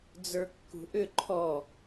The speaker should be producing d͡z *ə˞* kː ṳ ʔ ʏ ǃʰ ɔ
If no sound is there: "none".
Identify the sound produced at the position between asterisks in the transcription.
ə˞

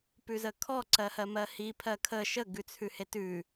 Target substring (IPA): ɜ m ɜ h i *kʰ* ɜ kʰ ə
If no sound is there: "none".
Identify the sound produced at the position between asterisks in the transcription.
pʰ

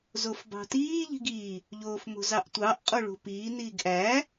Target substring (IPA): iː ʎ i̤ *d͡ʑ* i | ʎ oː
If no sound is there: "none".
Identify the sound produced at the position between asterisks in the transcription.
ɡ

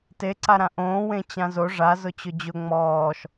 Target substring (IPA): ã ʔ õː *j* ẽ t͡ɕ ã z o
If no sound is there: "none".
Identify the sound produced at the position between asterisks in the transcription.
w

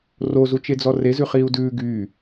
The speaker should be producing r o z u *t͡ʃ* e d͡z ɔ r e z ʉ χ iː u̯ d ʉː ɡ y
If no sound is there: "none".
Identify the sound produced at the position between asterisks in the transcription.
t͡ʃ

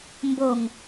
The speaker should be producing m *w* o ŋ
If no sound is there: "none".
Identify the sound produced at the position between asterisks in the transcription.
b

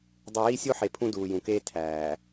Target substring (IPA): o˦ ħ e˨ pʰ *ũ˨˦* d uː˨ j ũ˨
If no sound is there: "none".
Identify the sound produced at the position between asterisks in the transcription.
ũ˦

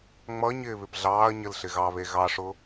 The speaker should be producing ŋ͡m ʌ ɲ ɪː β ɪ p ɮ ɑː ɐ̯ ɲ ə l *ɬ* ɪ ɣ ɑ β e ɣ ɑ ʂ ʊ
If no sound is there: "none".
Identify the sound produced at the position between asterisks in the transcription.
ɬ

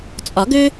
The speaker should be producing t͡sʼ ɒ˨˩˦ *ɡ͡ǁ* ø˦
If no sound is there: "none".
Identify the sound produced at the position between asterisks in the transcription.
ɡ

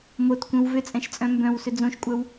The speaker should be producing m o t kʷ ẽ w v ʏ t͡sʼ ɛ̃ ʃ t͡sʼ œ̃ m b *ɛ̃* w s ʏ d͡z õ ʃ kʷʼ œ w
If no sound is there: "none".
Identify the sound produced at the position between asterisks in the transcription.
œ̃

